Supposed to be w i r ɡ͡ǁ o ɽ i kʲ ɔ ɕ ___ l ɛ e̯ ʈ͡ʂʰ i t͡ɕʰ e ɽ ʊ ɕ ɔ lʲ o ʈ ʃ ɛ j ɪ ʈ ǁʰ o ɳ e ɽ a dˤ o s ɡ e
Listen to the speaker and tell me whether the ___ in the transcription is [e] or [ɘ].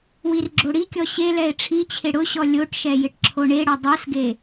e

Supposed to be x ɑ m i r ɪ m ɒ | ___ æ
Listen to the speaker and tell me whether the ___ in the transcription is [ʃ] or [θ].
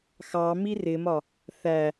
θ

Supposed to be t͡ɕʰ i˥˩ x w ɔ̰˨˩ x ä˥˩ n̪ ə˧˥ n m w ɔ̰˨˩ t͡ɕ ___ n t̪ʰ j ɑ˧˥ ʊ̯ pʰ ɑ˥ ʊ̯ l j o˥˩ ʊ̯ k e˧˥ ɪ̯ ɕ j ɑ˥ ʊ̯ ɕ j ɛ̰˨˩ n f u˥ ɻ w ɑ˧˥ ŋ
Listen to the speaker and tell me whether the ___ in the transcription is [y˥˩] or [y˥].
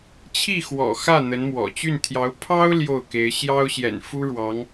y˥˩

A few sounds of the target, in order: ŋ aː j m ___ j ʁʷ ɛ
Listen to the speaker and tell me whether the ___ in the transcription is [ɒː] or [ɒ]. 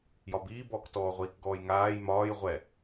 ɒː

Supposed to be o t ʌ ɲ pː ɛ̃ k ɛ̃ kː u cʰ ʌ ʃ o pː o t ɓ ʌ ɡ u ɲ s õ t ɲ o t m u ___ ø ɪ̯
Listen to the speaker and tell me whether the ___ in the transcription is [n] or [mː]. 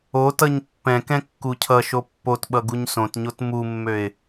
mː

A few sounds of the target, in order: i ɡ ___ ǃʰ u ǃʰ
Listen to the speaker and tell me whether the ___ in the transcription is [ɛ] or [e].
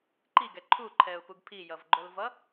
ɛ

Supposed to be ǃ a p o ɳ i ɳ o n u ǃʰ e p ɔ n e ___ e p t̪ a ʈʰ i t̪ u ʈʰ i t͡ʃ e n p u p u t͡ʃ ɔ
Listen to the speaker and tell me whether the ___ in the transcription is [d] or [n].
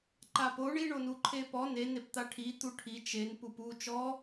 n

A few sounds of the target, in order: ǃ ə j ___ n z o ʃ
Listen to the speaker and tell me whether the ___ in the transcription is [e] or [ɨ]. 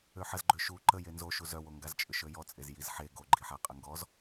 e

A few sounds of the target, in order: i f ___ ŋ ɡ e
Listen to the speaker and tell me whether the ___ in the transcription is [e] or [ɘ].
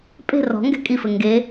ɘ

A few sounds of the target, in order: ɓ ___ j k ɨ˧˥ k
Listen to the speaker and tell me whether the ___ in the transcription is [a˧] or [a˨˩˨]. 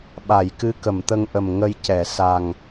a˨˩˨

